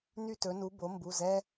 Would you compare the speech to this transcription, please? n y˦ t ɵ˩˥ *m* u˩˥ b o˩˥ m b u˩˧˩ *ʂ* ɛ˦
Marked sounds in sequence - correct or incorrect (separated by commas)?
incorrect, incorrect